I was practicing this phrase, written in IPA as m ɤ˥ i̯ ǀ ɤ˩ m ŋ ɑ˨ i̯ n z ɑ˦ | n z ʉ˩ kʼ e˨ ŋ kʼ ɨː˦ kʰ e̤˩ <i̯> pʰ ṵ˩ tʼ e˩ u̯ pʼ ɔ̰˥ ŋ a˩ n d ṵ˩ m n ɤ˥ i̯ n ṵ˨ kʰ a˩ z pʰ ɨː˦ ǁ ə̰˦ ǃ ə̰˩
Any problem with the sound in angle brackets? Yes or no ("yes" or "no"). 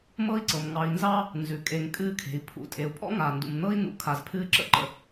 no